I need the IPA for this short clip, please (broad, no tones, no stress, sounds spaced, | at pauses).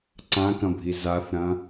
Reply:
ǀ ã k ɐ̃ bʱ i z a θ ɾ ɐ̃